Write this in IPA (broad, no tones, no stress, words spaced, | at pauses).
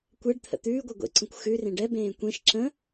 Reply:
kʷɛɖ t̪ʰə̰t̪ʉː ɡʷɛɡʷḛǀə̃kʷ xʉ rẽɖɛ bẽːkʷẽʃ ǁə̃